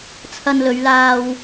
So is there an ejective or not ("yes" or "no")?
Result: no